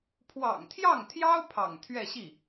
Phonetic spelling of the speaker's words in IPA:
pʰ w ɑ̰˨˩ ŋ t̪ʰ j ɑ˥˩ ŋ t̪ʰ j ɑ˥ ʊ̯ pʰ ɑ̰˨˩ ŋ t̪ʰ ɥ ɛ˥˧ ɕ i˥˩

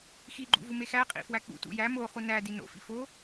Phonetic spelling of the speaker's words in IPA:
x i ɡ͡ǃ ṵ v u m e x æ qʼ ḭ f w æ k͡p ṵ t ṵ j æ m o χ u n æ d i n o̰ f ḭ f o

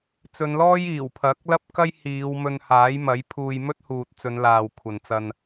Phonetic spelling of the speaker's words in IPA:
t͡s ɵ˨˧ n l ɔː˥ j iː˨˩ w pʰ ɐ˨˥ k̚ l ɐ˥ p̚ k ɐ˥ j h iː˨˧ w m ɵ˧ n h aː˨˥ j m ɐ˨˥ j pʰ uː˧ j m ɵ˥ t̚ h uː˨ t̚ t͡s ɵ˨˧ n l aː˨ w kʷʰ ɐ˨ n t͡s ɐ˧ n

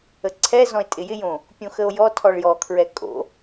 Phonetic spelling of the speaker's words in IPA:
ə ǀʰ ɛ z ɔ̃ e̯ tʼ ɪ j ɪ j õ | pʲ õ x ə o̯ j ɔ tʰ ɔ ɭ j ɔ kʰ ɹ ɛ kʼ o̰

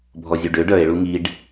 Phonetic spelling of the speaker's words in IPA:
bʱ ɔ zʲ u ɖ ø ɖ œ e̯ ɭ u ŋ i ɖ

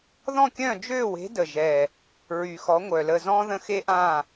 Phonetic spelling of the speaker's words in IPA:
ð ɔ̃˦˨ kʲ œ̃˦˨ d͡ʒ øː˦˨ w e̤˨˦ d ə˨˩ ʒ ɛ˨˩ | ɹ y˨˩ x ɔ˨˦ ŋʷ œ˨˩ l ə˦˨ z ɔ̃ː˦ ð ə̃˦˨ x e˦ ʔ ã˦˨

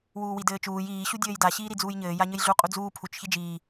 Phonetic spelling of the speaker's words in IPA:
w uː w i d ɘː t͡ʃ uː j iː ɕ u dʲ ɘː j d a ɕ iː ɾ i d͡z uː j ɲ ɘː j a ɲ ɘ j ɮ u qʼ u d͡z uː pʰ u t͡ʃ ç i d͡ʒ iː

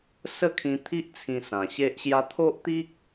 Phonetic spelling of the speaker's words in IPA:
s ə˦ kʰ ĩ˧ t̪ʰ i˦ ʔ t͡sʰ ĩ˧ s ã˨˩ ɕ e˦ ʔ ɕ j a˦ t̪ʰ o˦ ʔ t̪ i˦ k̚

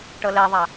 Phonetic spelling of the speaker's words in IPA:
ʈ ɤ l ɛ ðˤ a

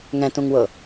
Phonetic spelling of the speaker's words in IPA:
ŋ ɛ̃ t ũ ŋ w ɤ

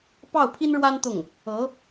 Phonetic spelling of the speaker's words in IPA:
p ɑ˥˩ ʊ̯ pʰ i˥ n ɻ w a˥ n t̪ ʊ˥˩ ŋ | ɤ˧˥

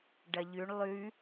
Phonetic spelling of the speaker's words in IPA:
ɖ ɐ ʎ ʉ ɳ lˠ ʉ

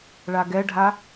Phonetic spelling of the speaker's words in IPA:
ɭ a ɡ ɛ ɖʱ a

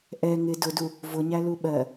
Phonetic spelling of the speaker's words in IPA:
ʔ ɛ ŋ ɪ d ʊ d u | v ʊ ɲ æ l u ɓ ɜ

